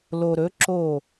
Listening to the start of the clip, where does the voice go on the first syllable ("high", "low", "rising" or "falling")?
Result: low